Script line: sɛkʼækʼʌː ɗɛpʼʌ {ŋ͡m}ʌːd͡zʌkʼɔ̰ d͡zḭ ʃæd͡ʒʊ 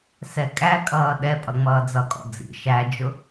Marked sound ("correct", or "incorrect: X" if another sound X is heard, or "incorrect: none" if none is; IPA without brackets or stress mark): correct